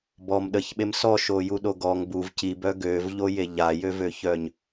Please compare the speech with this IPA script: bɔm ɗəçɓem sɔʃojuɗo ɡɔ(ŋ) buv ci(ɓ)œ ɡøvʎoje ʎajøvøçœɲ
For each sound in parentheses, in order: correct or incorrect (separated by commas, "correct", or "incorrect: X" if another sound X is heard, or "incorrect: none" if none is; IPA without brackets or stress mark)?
correct, incorrect: b